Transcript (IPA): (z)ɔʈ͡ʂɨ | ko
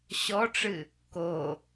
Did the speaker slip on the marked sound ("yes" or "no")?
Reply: yes